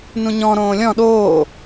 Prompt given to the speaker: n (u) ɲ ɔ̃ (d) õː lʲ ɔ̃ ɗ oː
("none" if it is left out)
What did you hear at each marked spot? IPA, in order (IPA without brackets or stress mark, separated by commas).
ũ, ɾ